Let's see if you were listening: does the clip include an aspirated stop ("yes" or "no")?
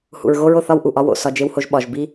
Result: no